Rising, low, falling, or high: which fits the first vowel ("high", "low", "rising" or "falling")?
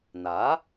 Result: rising